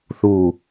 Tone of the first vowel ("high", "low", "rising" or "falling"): low